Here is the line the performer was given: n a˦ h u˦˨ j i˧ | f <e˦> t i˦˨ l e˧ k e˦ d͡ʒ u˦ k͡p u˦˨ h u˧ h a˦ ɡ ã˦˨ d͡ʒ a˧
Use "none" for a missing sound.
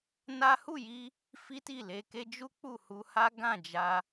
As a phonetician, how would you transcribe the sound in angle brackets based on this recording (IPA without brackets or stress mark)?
i˦